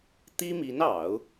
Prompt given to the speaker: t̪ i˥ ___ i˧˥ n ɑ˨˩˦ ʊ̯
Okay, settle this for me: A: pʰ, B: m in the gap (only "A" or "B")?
B